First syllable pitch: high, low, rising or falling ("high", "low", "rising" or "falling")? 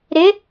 rising